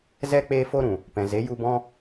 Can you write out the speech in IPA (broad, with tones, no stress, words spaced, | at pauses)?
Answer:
zɛ˦ k͡peː˦fo˦ɾũ˨ | pɛ̃˨ze˨˦ju˧ bɔ̃˦